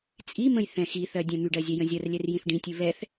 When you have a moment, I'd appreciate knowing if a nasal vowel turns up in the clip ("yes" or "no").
yes